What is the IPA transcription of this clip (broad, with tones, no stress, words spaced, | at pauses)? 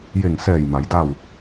je˧˩ŋsɛː˧˩j ma˩˧jda˥˨w